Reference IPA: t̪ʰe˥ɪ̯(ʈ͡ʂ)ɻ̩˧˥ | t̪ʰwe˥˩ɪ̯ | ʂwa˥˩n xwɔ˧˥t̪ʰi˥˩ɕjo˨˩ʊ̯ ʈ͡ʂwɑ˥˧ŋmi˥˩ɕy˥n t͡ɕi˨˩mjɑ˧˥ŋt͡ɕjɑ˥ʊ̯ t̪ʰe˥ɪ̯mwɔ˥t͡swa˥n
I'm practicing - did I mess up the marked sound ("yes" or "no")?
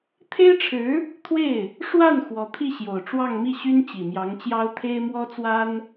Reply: yes